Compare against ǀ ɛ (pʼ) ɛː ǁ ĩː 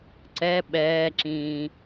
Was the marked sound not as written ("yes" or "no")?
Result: yes